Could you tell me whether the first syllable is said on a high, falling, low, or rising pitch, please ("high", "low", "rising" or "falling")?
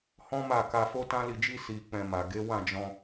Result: high